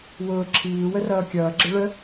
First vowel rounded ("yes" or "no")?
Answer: yes